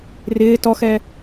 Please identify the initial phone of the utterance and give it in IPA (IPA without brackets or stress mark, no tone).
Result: r